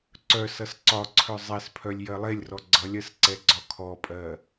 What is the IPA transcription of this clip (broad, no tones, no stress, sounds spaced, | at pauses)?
ǀ œ s ʌ s ǀ ɒ ǀʰ œ zˤ ɛ s pʰ œ lʲ j ɜ lˠ e lʲ r ɔ ɡ͡ǀ ʌ lʲ ɜ s ǀ ɛ ɡ͡ǀ ɒ kʰ ɔ pʼ ɜ